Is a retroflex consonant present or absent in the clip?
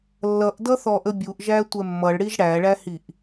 present